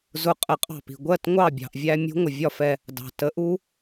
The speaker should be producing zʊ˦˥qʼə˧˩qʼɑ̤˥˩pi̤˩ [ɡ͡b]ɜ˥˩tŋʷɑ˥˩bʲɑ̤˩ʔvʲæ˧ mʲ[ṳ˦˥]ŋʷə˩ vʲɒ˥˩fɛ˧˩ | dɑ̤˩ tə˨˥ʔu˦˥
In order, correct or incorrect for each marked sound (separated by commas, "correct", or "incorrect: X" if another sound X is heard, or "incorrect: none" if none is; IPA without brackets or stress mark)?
incorrect: ɡʷ, correct